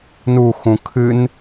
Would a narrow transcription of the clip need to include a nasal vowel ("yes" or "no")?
yes